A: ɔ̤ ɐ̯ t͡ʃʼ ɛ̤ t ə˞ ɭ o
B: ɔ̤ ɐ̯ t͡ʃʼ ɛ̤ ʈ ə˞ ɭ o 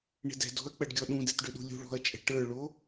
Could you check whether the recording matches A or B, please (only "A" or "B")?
B